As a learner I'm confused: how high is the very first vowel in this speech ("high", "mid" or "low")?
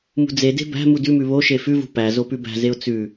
high